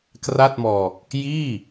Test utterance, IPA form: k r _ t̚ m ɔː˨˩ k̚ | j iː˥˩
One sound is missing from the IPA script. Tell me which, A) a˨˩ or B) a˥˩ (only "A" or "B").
B